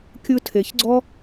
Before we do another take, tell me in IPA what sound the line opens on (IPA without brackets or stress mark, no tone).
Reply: kʲ